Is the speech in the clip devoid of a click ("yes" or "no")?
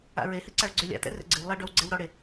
no